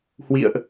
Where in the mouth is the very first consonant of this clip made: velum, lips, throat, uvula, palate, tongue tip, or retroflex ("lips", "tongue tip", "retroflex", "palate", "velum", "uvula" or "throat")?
throat